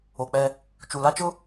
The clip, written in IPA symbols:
o˨k͡pɛ˦ | t͡ʃu˨la˦t͡ʃʊ˦

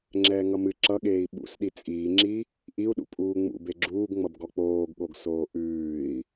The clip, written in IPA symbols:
ŋ͡ǁɛːŋʌmɨ ǁʌɠeːi̯ ɓṵsɗi t͡sʼiːŋ͡ǁi | ʔiu̯ɗṵ pʼuːŋ͡mṵ beɡ͡ǁuːɡŋ͡mʌb ɡɔk͡poːɡɠoɡsoː ʔʉːi̯

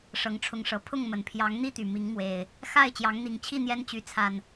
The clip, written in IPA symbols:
ʂɤ˨˦ŋʈ͡ʂʰʊ˨˦ŋʂɤ˨˩ pʰʊ˥˨ŋmə˨˩n pʰjɑ˨˦ŋn̪i˥˨t̪y˩ mi˨˦ŋmwe˨˩ɪ̯ | xa˥˨ɪ̯ t͡ɕjɑ˨˦ŋn̪i˨˩ŋt͡ɕʰi˥˨ n̪jɛ˦nt͡ɕy˨˦t͡sʰa˨˩n

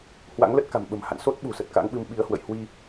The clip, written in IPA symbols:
hwa̰˧˥ŋlə˦˥t̚ ka̤˨˩mɓə̤˨˩m ha̰˧˨n so˦˥t̚ ɓṳ˨˩sə˨˩t̚ka̰˧˥ŋɓɨ˧m ɓi˧ə̯ hwə̰˧˨jhwi˧

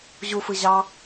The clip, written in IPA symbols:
ʑufɯ ʑɑ

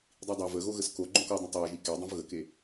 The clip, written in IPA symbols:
dˤidˤa vəɣoɣəs ko ɡ͡ǃõkɔdˤõ tˤaɐ̯ʒi kedˤõv ɣəke

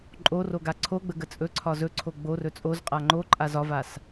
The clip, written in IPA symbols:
ǃʼoroɡa ǀʰoɡ͡bə ɡət͡sʼɵǀʰɒ zɵǀʰo ɡ͡bo rɵt͡sʼoz qʼaŋ͡ǃo ǃʼazɒvas

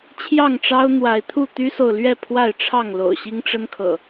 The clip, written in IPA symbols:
t͡ɕʰjɑ˥˨ŋʈ͡ʂɑ˦ʊ̯ n̪wa˨˦ɪ̯t̪ʰu˥˨ t̪y˦so˨ʊ̯lɥɛ˥˨ pʰwa˥˨ɪ̯ʈ͡ʂʰɑ˥˨ŋ lo̰˨˩ʊ̯ɕi˦ŋʈ͡ʂə˦nkʰɤ̰˨˩

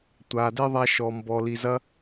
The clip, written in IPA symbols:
tʷa˨de˦ ðˤa˧ ʃɔ˨mbɔ˨li˨ zɐ˧

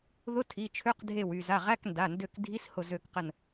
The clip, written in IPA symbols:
ðʊ˧˥˧tʰi˩˧˩t͡ʃʰø˧˥˧q dʱe˧˩wy˧˩za˩˧˩ ʁæ˧˥˧knda˩˧˩ndø˧˩k dʱi˧˥˧shʊ˧˩ zø˧˩kqə˧˩n

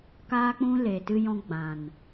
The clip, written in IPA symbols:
kaː˦k͡pũ˦ le˨ tɨ˧jɔ̃˧ ɡ͡bã˨n

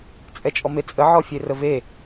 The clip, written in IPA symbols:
t͡sʼɛt͡ʃʼɔmet͡sʼə ʕɔfʲerəve

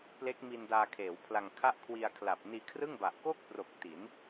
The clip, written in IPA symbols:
ple˦˥k̚mi˧ndaː˧kʰeː˩˦w pʰla˧ŋkʰa˥˩ʔ kʰwi˧a̯kʰla˨˩p̚ niː˧kʰrɯ˥˩ŋba˨˩ʔ ko˥˩k̚pro˨˩k̚ ti˩˦n

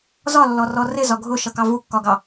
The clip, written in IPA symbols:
zɒlːɔrɔ rɪzɒ ɡʱʊʃʌkɑ vukːɒɡɑ

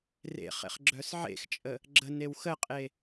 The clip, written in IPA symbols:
rḛ χḛχɡ͡ǁœsʕḛxt͡ʃʼə | ɡ͡ǁənew xəqʼe

